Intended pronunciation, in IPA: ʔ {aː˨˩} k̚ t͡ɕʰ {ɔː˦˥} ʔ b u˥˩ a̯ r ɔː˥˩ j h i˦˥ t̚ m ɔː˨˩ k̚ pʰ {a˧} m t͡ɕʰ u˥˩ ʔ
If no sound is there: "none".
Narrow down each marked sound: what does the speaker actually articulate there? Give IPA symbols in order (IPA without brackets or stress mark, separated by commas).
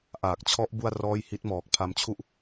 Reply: aː˨˩, ɔ˦˥, a˧